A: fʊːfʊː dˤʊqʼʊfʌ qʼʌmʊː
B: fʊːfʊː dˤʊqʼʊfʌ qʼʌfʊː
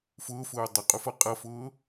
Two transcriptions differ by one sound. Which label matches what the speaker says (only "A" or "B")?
B